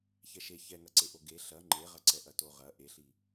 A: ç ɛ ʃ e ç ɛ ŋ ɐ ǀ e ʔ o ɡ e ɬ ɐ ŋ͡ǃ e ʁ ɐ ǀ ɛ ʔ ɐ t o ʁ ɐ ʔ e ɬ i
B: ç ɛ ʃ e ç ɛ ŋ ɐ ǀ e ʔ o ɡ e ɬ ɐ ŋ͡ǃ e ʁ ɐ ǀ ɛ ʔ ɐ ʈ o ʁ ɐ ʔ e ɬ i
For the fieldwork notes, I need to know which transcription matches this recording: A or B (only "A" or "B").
A